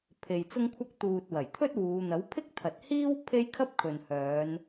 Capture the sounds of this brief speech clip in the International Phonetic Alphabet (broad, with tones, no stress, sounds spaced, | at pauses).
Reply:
pʰ e˨ j t͡s ʊ˥ ŋ kʷʰ ɐ˥ k̚ t̪ uː˨ t̚ w ɐ˨˩ j t̪ʰ ɵ˥ t̚ w uː˨˧ n̪ ɐ˨˥ w pʰ ɪ˥ k̚ t̪ʰ ɐ˨ t̚ h iː˥ w pʰ e˥ j kʰ ɐ˥ p̚ kʰ ɵ˨ n h œː˨˧ n